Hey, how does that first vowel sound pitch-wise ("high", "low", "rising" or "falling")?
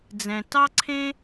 low